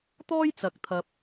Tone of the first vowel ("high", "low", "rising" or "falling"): high